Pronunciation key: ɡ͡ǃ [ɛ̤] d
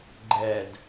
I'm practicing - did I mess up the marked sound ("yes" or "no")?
yes